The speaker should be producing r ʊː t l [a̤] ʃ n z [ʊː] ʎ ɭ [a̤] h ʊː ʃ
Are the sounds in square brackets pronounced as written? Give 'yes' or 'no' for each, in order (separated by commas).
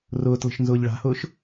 no, yes, yes